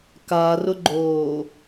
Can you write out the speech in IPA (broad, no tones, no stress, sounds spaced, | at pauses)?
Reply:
k a r ʊ ɡ͡ǃ oː